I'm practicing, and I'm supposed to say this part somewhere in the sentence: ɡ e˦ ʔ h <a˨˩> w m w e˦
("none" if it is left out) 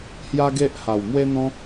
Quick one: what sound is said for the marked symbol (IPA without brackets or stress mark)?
a˨˩